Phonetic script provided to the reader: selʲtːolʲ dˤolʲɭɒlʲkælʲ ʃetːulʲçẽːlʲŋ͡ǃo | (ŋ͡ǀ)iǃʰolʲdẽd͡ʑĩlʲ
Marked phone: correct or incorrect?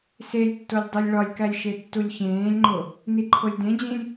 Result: incorrect